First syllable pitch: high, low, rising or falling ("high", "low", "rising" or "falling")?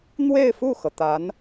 falling